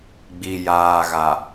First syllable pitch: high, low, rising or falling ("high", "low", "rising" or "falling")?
low